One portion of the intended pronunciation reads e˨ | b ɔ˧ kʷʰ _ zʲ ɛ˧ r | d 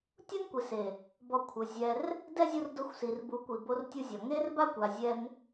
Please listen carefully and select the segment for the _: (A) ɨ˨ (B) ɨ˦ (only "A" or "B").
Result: A